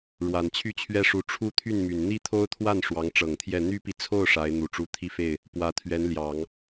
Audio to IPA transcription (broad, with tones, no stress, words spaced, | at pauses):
ɻwa˨˩nt͡ɕʰy˥˩t͡ɕʰɥɛ˥ʂu˧˥ ʈ͡ʂʰu˥t̪ʰy˥˩nmy˨˩n n̪i˥t̪ʰo˥ʊ̯t̪ʰwa˥˩n ʂwɑ˧˥ŋʈ͡ʂɤ˨˩ŋt̪ʰjɛ˥˩ n̪y˥pi˨t͡sʰo˥˩ʊ̯ ʂa˧˥ɪ̯ n̪u˨˩ʈ͡ʂu˧˥ t̪ʰi˥˧fe˥˩ɪ̯ | pwä˧˥t̪ʰɥɛ˧˥nljɑ˨˩˦ŋ